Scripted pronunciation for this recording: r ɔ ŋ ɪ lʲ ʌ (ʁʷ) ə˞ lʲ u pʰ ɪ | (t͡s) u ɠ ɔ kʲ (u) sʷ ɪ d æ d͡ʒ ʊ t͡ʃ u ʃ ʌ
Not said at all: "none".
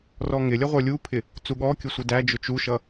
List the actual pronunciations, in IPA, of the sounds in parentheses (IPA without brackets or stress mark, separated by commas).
ʁʷ, t͡s, ʊ